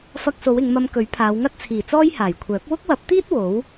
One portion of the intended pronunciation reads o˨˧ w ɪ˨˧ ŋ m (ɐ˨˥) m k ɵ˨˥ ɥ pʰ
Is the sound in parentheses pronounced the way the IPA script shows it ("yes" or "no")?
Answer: no